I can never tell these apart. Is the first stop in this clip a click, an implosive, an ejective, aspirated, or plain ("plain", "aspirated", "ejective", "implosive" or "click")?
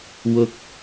plain